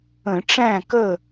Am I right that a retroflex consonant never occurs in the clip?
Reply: no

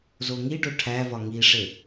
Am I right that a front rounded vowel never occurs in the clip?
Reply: yes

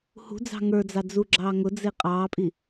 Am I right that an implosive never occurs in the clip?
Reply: yes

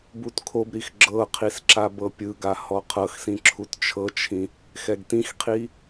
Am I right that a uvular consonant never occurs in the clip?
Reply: no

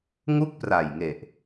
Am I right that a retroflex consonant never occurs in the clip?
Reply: yes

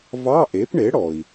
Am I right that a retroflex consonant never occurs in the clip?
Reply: no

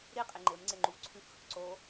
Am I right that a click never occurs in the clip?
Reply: no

